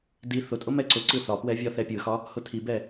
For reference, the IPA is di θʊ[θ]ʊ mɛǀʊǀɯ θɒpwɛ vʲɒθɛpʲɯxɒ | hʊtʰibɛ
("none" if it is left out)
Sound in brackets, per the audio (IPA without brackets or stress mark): tʼ